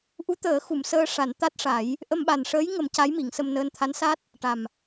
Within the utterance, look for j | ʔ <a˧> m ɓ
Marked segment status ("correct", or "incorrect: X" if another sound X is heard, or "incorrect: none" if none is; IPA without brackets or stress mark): incorrect: ə˧